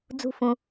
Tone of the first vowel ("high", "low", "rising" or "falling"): falling